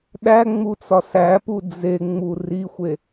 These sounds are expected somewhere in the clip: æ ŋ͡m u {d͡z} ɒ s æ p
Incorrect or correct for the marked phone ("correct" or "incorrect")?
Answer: incorrect